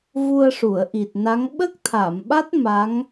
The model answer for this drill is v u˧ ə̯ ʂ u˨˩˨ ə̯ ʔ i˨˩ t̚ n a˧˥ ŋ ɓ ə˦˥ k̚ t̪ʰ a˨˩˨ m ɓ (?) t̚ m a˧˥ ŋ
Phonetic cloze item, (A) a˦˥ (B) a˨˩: A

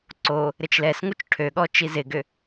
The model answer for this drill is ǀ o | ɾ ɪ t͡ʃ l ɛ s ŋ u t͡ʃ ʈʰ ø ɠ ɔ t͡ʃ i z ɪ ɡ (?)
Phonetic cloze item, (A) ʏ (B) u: A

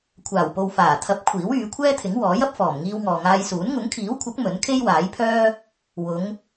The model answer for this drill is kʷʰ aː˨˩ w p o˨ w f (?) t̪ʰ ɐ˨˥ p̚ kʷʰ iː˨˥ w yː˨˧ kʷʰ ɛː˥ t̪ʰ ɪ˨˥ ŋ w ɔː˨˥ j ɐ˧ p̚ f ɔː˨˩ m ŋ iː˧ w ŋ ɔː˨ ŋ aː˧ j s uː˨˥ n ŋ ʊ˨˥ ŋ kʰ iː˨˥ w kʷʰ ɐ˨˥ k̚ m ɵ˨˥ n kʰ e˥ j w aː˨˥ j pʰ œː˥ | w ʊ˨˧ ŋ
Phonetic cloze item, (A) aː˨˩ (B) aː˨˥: A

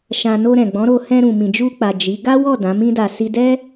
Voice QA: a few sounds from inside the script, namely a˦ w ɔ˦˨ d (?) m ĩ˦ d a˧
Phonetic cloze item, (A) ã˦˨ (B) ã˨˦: B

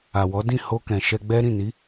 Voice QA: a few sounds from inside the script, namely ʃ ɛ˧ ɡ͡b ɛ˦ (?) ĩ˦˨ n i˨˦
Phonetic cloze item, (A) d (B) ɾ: B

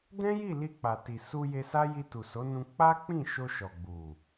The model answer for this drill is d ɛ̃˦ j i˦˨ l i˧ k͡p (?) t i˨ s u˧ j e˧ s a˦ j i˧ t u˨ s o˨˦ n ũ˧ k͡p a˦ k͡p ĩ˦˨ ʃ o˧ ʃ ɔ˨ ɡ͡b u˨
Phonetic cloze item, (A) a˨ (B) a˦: A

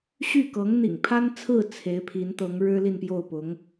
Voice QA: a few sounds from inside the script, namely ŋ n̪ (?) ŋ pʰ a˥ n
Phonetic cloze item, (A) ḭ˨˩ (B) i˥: A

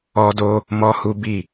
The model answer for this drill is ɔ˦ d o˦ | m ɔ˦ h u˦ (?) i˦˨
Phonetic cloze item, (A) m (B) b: B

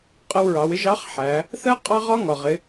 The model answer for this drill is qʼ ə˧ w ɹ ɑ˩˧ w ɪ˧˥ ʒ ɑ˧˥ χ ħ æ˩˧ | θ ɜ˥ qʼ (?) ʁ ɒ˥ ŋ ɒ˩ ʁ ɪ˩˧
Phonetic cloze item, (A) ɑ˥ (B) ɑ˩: A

